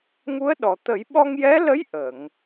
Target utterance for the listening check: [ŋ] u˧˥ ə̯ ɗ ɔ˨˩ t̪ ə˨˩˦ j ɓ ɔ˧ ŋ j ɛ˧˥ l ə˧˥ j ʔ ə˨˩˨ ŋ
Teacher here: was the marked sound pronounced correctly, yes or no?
yes